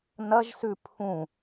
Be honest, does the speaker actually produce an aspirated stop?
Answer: yes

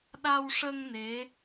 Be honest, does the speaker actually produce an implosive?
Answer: yes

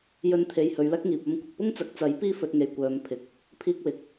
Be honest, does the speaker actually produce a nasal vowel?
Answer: no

